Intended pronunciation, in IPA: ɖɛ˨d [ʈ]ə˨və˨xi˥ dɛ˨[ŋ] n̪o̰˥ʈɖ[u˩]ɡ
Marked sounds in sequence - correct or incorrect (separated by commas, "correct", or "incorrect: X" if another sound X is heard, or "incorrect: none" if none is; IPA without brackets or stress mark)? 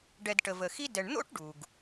correct, incorrect: ɳ, correct